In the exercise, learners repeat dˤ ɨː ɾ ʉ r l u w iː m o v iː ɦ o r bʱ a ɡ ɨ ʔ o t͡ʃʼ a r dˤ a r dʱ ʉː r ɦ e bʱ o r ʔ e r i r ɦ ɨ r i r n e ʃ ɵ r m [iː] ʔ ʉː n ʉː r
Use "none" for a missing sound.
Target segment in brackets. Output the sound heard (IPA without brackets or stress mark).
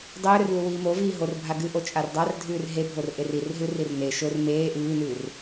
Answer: eː